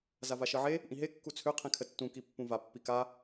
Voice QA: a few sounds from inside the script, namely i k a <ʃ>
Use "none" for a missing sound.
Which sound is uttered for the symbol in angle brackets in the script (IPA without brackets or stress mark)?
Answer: none